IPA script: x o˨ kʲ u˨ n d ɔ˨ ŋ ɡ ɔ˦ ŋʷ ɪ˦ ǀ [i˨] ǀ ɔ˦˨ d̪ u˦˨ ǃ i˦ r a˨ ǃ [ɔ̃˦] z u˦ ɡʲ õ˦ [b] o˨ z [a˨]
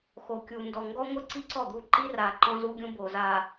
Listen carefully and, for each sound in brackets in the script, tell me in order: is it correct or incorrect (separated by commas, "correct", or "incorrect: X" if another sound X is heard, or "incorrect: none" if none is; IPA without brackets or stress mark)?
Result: incorrect: i˦, correct, correct, correct